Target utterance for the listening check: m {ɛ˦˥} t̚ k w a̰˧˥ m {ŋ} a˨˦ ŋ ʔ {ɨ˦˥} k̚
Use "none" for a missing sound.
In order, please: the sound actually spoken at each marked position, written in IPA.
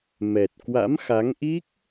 ɛ˨˩, x, i˦˥

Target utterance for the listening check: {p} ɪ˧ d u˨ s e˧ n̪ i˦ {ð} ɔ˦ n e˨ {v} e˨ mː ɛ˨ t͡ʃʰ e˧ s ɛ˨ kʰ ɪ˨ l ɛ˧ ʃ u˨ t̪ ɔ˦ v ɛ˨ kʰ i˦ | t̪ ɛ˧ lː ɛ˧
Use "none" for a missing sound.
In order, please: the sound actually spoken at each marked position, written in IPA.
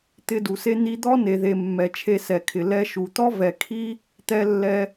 t̪, d̪, ð

